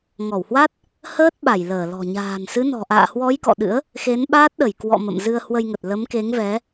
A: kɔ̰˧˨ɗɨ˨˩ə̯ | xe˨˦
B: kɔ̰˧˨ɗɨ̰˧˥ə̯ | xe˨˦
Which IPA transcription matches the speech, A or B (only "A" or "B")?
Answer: B